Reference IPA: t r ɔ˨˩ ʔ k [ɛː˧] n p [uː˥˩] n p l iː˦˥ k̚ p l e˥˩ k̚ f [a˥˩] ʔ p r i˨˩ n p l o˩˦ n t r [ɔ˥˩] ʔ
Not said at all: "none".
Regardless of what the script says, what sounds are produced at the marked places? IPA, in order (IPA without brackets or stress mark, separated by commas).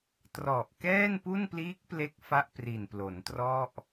ɛː˥˩, u˥˩, a˥˩, ɔ˥˩